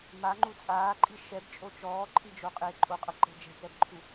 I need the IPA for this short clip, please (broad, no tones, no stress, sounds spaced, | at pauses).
m a ŋ͡ǃ u t͡sʼ aː ǃʼ i ʃ ɛ b t͡ʃʼ o t͡ʃ ɔː ǃʰ i d͡ʒ o qʼ e ǃʼ o qʼ ɤ ǃ e̤ d͡ʒ ɛ̤ k ɛ b ǃʰ u